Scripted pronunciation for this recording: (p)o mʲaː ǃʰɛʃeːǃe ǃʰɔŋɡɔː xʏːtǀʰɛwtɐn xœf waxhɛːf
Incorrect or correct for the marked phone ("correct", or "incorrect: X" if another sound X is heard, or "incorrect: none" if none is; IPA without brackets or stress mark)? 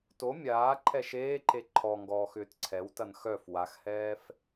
incorrect: t